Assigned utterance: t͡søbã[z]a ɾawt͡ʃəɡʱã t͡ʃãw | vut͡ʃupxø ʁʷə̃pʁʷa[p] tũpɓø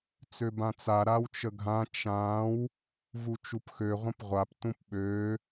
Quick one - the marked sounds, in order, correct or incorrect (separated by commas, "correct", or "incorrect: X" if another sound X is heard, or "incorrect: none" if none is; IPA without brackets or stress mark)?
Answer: incorrect: t͡s, correct